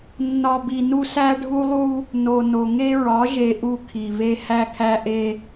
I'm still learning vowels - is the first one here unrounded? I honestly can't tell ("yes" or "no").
no